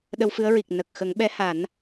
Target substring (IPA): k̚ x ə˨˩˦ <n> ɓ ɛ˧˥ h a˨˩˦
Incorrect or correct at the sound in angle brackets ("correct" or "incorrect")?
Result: incorrect